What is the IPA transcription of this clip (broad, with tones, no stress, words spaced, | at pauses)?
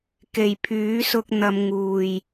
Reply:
ke˨˩j pʰyː˨˥sʊ˧k̚n̪ɐ˨˧m ŋuː˨˩j